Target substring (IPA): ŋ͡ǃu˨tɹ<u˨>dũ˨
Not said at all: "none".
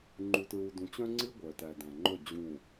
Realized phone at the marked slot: u˨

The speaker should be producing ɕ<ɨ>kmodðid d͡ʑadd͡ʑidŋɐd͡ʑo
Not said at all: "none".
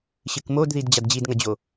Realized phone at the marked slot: ɨ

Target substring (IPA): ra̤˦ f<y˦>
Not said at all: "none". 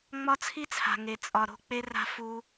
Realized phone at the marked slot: u˦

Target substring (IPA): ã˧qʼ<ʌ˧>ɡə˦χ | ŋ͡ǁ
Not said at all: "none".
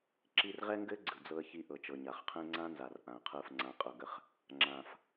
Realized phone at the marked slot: ʌ˧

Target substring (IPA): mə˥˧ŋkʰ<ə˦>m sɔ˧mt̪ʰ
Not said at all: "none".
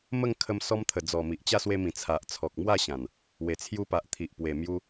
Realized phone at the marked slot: ə˧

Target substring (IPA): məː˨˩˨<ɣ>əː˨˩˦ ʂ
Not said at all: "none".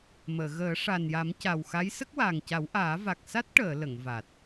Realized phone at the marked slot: ɣ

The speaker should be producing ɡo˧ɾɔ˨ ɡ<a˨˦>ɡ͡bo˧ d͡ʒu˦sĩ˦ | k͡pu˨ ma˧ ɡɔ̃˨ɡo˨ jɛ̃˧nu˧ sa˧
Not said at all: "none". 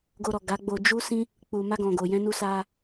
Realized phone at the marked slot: a˨˦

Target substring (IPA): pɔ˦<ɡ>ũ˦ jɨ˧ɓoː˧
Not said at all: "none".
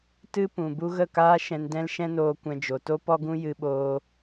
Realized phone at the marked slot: ɡ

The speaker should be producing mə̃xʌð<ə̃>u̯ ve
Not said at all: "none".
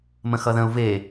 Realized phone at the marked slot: ə̃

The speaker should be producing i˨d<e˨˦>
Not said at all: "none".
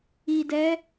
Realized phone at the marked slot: ɛ˨˦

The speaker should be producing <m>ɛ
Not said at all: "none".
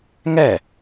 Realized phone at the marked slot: ŋ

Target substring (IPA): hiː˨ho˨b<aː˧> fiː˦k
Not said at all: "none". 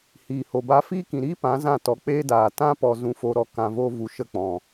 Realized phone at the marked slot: a˧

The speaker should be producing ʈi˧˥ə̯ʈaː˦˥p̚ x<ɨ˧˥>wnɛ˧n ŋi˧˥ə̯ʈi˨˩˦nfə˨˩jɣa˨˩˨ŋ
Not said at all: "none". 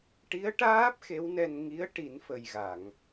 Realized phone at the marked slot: e˧˥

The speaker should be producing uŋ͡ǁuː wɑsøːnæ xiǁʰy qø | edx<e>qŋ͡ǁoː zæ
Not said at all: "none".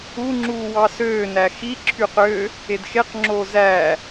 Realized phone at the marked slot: e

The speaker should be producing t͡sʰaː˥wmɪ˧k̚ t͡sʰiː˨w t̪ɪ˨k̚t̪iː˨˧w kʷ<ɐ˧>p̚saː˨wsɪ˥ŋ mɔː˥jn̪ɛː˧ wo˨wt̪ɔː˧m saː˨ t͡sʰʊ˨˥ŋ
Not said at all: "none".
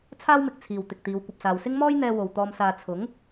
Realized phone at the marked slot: ɐ˨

